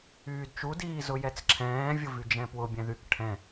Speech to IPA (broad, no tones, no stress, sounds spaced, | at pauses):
yː d t͡ʃ u d iː z ʊ j ɛ t͡s ǁʰ ɛ̃ː vʲ ʊ v y d͡ʒ ɛ̃ p w ʊ bʲ ɛ̃ ð y k ʈʰ ɛ̃